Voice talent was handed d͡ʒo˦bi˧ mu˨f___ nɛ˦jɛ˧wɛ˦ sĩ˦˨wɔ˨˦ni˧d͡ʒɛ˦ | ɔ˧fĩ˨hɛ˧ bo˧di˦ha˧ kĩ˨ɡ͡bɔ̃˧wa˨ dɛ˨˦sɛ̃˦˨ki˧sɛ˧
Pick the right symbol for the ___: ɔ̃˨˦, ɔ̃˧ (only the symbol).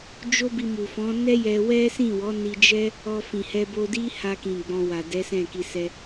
ɔ̃˨˦